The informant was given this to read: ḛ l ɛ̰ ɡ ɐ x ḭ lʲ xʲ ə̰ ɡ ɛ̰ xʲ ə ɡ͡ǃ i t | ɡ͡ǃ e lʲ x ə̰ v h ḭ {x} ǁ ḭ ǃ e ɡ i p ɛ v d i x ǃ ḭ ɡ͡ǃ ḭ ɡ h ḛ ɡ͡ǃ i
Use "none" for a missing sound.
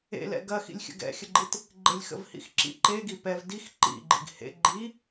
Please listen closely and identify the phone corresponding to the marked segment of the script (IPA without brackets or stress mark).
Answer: x